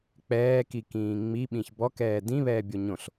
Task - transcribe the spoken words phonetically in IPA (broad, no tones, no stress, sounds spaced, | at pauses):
k͡p ɛː k i k ĩː ŋ͡m i ɓ ĩ ç b ɔ k ɛː d ĩ β ɛː bʲ o ɲ õ ɬ